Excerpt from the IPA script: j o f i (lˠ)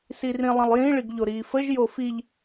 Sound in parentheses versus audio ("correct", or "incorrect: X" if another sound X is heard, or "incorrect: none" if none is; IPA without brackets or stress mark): incorrect: ʎ